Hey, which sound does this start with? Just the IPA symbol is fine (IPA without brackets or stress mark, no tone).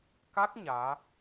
k